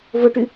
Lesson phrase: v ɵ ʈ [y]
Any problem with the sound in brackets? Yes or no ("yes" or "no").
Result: no